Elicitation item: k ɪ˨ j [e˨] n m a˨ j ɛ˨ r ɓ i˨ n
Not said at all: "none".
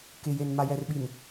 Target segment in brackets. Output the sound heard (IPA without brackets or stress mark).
e˨